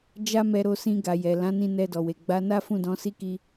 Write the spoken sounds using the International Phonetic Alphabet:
d͡ʒ a˦ m ɛ˧ ɾ o˧ s ĩ˧ ɡ a˨ j ɛ˨ l ã˨˦ n ĩ˧ n ɛ˧ d ɔ˨ w e˨ ɡ͡b a˨˦ n a˦ f ũ˦˨ d ɔ̃˨˦ s i˦˨ k i˧

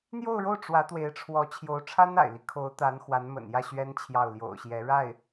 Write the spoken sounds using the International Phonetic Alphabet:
n̪ j o˥˧ ʊ̯ ɻ o˥˩ ʊ̯ ʈ͡ʂ w ä˧˥ t̪ w e˧˥ ɪ̯ ʈ͡ʂʰ w ɔ˧˥ t͡ɕʰ j o˧˥ ʊ̯ ʈ͡ʂʰ a˥ n a̰˨˩ ɪ̯ l i˦ kʰ o˧˥ ʊ̯ t̪ a˧˥ n x w a˧˥ n m ə̰˨˩ n j ä˥˩ ɕ ɥ ɛ˥ n t͡ɕʰ j ɑ˥˩ ʊ̯ l j o̰˨˩ ʊ̯ ɕ j ɛ˧˥ ɻ a˥˩ ɪ̯

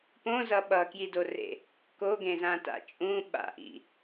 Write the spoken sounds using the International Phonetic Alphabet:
p õ z ʌ ɓ ʌ k j i d o r ḛ | k o ɡ ẽ z ã t a̰ t͡ʃʼ ũ ɓ a̰ ʔ ḭ

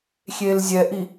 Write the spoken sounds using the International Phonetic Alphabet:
xʲ e l zʲ ɛ ʔ i

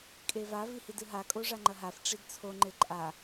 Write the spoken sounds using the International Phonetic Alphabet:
kʼ e v a v i h i d ɨ ɦ a kʼ o ʐ a ŋ͡ǃ ɐ ɦ a f ʈ͡ʂ i d t͡sʰ o ŋ͡ǃ e ǃʼ a

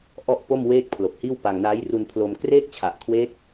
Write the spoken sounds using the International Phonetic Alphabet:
ʔ ɔ˥˩ ʔ p o˥˩ m w eː˥˩ k̚ pʰ l o˨˩ k̚ h iː˥˩ w p a˧ ŋ n a˦˥ j r u˧ n pʰ l o˧ m k r eː˥˩ k̚ t͡ɕʰ a˨˩ ʔ kʰ w e˦˥ k̚

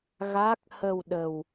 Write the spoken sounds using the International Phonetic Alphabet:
ɣ a˦˥ k̚ h ə˧ w ɗ ə˧ w

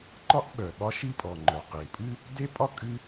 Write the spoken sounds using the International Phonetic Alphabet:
ǃ ɒ˥ ʔ ɓ œ˩ ɓ ɒ˥ ʃ i˥ pʼ ɔ˩ ŋ͡ǃ œ˩ q e˩ pʼ ɨ˥ | d e˥ pʼ ɒ˥ kʼ ɨ˥

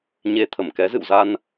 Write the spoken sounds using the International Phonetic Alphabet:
ɲ e˧ t̪ʰ ə˧˩ m k ɛ˨˦ z ɨ̰˧˨ w z a˧ n

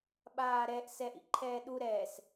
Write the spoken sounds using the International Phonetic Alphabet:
ɓ aː ɾ ɛ ʔ s ɛ ʔ ḭ ǃʰ ɛː ɗ u ɾ ɛː s

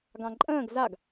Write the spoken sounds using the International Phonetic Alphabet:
ɡ ɑ̃ ǃʼ ə̃ː ɡ z a ɡ

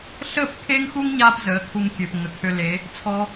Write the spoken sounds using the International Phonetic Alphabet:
ɬ əː˦˨ p kʰ e˦ ŋ x u˦ ŋ ɲ aː˧ p z əː˨˦ kʰ u˧ ŋ kʲ ø˨ p ŋ ə˨ kʰ ø˧ l e˨˦ | t͡sʰ ɔ˦

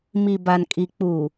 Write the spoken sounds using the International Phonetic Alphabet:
m i˨ b a˨ n kʼ i˨ k͡p uː˨

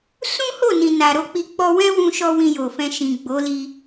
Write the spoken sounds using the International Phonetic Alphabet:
s ũ˦ h o˦˨ n ĩ˨ n a˨ ɾ o˧ k͡p i˧ k͡p ɔ˧ w ɛ̃˦ w ũ˧ ʃ ɔ˧ w ĩ˧ j o˨ f ɛ̃˧ ʃ ĩ˨ ɡ͡b o˨˦ l i˧

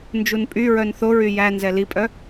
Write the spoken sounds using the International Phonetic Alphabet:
n d͡ʒ u n pʼ y ɹ œ n θ o ɹ y j æ n z ɛ l i pʼ œ

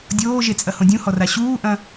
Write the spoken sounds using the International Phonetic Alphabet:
dʲ oː ʒ e t͡sʼ ɐ h õ dʲ ũ h ɔ r a ɕ uː ʔ ɐ̃

